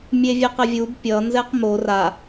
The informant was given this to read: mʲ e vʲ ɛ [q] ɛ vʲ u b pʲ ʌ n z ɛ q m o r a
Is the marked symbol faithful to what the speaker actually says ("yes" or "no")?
yes